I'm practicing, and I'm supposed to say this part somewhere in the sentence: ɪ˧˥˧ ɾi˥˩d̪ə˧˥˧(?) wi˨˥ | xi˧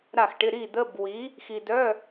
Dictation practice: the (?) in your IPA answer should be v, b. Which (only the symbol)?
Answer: b